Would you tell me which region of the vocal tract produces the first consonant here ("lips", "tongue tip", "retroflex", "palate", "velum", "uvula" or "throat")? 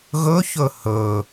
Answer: velum